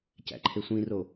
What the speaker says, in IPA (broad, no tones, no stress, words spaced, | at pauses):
cæ̰ǃʰesʷĩro